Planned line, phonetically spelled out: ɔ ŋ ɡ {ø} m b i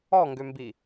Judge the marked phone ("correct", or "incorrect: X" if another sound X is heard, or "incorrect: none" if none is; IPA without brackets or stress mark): correct